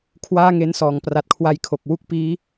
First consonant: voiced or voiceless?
voiceless